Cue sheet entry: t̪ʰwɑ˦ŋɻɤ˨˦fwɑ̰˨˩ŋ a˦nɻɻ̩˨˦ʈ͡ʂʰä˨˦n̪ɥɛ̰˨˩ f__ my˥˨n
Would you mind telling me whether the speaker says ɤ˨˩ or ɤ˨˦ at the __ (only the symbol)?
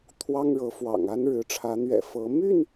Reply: ɤ˨˦